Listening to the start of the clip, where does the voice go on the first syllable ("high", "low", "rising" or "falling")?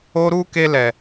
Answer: high